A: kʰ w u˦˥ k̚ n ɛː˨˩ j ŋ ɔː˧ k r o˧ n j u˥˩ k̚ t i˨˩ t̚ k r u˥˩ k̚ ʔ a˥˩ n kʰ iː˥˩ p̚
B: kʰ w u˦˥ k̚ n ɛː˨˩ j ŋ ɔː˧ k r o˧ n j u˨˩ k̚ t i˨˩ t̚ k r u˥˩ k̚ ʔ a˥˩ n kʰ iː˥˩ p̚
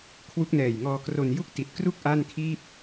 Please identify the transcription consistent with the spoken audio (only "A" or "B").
A